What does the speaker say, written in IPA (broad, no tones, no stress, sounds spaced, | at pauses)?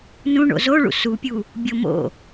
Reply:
n ũ ɳ o̰ z o ɭ ṵ s u pʲ u | bʲ o m o̰